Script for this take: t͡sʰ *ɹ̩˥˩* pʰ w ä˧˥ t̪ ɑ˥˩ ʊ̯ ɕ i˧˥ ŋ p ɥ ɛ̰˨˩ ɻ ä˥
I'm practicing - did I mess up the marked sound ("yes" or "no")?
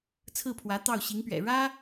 no